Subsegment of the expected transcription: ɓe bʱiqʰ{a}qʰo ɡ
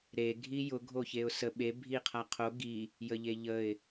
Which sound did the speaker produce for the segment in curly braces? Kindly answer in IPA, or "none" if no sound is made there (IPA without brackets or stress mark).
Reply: a